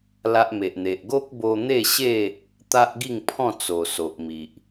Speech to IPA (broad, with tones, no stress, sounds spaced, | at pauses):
l a˦ ʔ m e˨ ʔ n̪ e˨ ʔ ɡ o˦ k̚ b o˧ n̪ e˥˧ ɕ e˥˧ | t̪ a˦ ʔ ɡ i˥˧ ŋ pʰ ɔ̃˥˧ t͡s o˨˩ s o˨ ʔ m i˨ ʔ